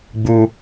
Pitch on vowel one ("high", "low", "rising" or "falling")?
low